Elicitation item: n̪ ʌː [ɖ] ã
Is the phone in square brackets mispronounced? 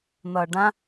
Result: no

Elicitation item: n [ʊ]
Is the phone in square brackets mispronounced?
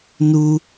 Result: yes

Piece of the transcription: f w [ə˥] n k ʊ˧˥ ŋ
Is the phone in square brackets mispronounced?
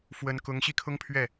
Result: yes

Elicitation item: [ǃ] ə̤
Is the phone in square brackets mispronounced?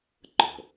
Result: no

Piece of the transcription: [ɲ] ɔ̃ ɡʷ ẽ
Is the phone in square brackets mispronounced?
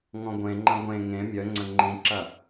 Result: yes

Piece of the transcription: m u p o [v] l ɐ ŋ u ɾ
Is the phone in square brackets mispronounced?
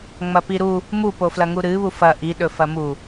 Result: yes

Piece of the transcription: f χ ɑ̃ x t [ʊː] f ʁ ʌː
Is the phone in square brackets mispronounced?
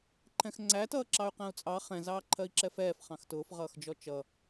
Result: no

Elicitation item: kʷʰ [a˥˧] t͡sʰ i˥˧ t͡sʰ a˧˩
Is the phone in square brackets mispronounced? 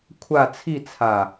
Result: no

